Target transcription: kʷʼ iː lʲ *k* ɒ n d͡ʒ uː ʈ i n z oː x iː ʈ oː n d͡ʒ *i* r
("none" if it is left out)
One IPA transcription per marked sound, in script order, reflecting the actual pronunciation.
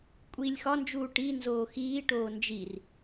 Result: x, i

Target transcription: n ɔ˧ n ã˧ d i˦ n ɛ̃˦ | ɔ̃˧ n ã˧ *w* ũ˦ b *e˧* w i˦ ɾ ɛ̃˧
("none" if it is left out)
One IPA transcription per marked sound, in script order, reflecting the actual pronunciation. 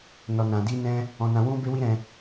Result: w, e˦

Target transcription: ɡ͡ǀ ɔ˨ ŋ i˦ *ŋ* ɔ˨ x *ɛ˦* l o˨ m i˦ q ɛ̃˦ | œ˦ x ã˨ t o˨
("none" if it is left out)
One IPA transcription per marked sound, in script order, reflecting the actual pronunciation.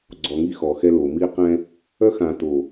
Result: x, ɛ˦

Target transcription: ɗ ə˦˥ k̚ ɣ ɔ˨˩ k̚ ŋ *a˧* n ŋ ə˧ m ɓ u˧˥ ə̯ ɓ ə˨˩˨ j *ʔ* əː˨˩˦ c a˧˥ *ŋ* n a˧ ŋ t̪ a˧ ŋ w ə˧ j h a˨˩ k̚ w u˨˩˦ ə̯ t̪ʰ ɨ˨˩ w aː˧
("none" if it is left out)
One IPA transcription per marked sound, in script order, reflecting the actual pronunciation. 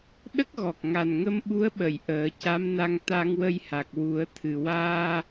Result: a˨˩, ʔ, m

